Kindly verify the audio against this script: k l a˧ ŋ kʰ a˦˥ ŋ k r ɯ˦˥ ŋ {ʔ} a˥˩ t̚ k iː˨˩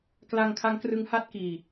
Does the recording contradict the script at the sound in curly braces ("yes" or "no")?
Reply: yes